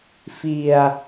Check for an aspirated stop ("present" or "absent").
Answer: absent